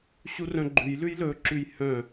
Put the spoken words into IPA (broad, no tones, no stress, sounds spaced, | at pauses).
ɕ u r œ̃ ɡ͡ǃ ʉ j l ʉ j l ɵ ǁ ʉ j h œ̃